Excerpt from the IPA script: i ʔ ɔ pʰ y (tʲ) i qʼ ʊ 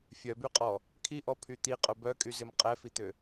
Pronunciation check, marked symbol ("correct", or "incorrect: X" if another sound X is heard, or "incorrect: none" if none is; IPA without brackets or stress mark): incorrect: t̪